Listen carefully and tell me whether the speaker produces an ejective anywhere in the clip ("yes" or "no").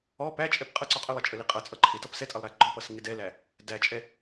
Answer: yes